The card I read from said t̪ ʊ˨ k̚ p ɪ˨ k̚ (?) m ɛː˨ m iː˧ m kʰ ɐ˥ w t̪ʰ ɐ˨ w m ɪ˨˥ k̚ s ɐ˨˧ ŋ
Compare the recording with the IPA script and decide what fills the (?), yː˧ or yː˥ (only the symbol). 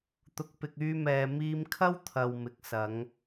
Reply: yː˧